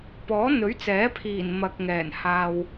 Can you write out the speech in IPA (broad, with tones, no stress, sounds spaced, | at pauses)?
p ɔː˨˥ n̪ ɵ˨˥ ɥ t͡s ɛː˨˥ pʰ iː˨˩ n m ɐ˨ k̚ ŋ ɛː˨˩ n h aː˨ w